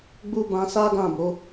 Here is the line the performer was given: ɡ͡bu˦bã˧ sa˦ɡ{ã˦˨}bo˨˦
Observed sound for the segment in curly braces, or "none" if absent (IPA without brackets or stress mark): ã˦˨